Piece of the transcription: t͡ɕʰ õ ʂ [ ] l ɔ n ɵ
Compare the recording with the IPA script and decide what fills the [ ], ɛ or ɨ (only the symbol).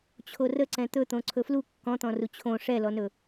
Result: ɛ